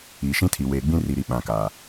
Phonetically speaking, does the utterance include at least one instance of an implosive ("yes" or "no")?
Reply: yes